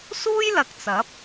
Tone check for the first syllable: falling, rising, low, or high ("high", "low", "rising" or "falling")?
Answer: high